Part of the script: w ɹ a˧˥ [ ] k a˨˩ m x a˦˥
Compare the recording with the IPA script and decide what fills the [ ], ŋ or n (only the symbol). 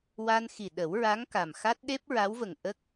ŋ